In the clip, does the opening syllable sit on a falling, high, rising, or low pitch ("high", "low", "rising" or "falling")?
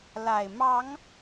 low